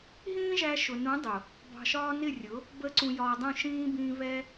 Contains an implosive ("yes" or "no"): no